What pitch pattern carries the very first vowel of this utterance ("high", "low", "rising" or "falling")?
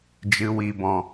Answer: low